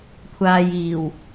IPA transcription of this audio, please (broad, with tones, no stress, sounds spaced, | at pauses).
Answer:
kʷʰ aː˨ j iː˨˩ w